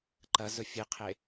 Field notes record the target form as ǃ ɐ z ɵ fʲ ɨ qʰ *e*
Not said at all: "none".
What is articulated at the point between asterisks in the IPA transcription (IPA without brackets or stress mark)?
e